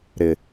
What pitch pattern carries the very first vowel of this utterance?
low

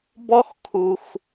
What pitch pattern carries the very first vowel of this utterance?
high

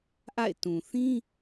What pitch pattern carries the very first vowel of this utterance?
falling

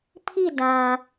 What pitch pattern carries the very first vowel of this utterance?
falling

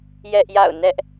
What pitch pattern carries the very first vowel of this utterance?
high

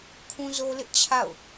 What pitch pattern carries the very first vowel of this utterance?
high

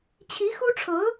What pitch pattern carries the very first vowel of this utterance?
rising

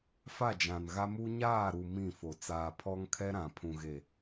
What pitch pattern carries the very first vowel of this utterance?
falling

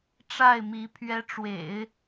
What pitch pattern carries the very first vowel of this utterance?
falling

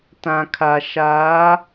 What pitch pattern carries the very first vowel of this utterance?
low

